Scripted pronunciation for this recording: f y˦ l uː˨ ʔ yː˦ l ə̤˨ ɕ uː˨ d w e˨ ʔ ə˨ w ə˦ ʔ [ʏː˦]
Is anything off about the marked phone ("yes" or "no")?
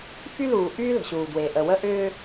no